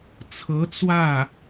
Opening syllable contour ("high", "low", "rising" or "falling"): rising